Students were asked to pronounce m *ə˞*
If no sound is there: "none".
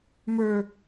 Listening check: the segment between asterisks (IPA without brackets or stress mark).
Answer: ə˞